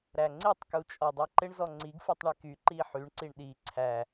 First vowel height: low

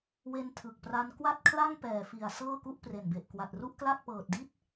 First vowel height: mid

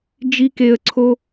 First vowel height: high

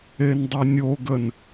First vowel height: mid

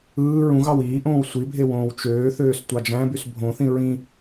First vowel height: high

